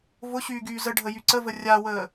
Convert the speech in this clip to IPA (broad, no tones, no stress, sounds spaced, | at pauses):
v ʊ ɕ yː ɡ yː z ə ɖʱ ə j y ǀ ə v ə rʲ a w əː